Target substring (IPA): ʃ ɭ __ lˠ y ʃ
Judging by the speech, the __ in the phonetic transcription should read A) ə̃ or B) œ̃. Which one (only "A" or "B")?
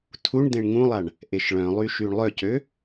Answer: B